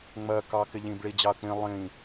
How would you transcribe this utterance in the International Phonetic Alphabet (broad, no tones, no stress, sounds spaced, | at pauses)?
ŋ͡m ɜ k ɑ k ɪ ʎ ĩ b ɭ i d͡ʑ ɑ ɐ̯ k͡p ĩ lˠ ĩ